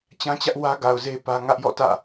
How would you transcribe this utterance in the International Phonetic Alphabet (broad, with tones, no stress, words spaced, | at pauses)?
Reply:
t͡ɕã˦t͡ɕä˦ʔ wä˦ɡa˨ʊ̯ze˦ pä˦ ŋä˦ʔjɔ̰˦˨tä̰˦˨